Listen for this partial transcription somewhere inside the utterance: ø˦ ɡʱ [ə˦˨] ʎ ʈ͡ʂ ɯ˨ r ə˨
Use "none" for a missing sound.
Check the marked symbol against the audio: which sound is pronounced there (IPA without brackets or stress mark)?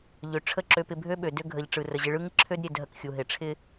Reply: ə˨